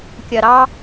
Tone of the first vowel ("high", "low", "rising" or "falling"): low